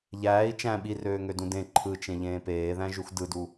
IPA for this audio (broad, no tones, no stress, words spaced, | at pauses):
ʎæːi̯ t͡ʃæ̃ ɓirøːŋødũ dẽ ǃʰɯt͡ʃẽʎẽː peːðæ̃ʒux dɯdu